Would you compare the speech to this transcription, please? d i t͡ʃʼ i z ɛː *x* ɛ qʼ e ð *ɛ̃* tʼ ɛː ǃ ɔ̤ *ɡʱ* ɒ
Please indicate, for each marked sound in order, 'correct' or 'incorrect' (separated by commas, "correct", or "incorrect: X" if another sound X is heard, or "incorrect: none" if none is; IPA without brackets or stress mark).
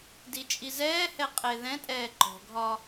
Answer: incorrect: h, correct, correct